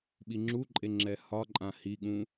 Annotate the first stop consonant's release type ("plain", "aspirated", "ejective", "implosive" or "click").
implosive